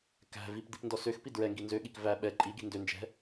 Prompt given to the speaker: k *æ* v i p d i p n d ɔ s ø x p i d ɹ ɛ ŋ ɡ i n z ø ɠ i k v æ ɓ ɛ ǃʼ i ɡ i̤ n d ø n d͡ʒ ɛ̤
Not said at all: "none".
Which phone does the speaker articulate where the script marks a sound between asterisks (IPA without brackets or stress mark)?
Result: æ̤